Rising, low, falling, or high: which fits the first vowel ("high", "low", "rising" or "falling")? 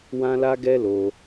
high